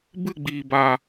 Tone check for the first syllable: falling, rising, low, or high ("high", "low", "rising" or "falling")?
falling